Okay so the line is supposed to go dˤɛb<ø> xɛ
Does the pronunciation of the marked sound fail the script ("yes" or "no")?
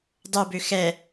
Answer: no